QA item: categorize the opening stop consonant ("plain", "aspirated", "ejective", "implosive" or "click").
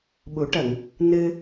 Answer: implosive